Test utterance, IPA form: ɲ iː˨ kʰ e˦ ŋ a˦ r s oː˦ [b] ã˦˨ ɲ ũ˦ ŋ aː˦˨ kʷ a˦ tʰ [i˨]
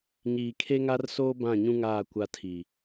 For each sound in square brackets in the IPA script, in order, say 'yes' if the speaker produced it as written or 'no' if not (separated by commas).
yes, yes